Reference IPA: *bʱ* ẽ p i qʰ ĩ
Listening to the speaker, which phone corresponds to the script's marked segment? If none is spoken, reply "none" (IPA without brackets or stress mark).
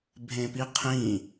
bʱ